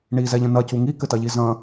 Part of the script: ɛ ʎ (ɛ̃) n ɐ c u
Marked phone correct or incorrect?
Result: incorrect